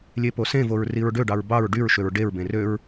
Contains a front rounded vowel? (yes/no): yes